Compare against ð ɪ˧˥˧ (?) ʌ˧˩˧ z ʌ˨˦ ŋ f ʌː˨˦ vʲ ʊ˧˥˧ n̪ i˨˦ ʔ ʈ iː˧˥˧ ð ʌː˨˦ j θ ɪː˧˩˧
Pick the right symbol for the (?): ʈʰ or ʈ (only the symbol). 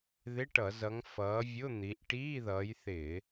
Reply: ʈ